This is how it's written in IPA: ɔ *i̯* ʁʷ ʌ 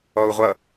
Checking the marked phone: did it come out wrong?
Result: yes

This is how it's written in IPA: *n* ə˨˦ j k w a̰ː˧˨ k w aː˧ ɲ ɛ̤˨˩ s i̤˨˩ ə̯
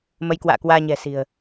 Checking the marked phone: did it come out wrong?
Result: yes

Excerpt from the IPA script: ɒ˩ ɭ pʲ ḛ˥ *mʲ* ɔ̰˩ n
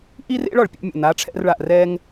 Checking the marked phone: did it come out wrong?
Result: no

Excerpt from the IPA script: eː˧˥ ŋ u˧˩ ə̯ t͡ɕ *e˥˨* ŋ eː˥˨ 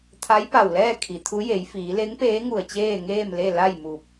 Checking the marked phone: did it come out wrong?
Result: yes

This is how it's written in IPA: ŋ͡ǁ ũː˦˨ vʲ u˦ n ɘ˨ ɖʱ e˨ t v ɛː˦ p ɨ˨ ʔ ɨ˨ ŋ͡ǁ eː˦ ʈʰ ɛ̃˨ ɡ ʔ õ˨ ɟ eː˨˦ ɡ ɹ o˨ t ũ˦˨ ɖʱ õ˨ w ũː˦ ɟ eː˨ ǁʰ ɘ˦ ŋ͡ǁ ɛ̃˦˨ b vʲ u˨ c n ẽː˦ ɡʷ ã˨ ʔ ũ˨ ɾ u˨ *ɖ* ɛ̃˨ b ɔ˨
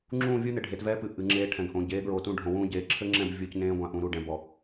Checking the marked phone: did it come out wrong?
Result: no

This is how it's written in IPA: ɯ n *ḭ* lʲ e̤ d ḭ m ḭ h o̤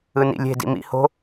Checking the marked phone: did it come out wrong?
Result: no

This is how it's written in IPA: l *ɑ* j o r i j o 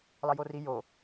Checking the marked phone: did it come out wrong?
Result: no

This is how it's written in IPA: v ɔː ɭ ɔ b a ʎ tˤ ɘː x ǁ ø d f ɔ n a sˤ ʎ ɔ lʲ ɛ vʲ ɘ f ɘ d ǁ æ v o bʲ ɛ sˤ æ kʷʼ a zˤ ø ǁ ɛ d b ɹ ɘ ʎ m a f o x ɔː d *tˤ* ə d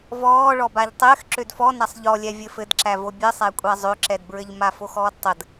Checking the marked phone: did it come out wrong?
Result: no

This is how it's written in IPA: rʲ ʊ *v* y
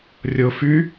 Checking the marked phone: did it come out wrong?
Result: yes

